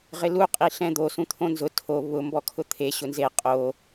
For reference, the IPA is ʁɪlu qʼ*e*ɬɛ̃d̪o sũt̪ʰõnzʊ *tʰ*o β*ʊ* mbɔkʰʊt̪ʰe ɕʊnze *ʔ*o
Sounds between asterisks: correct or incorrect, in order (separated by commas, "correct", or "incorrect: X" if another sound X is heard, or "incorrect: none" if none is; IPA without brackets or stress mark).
incorrect: i, correct, correct, incorrect: qʼ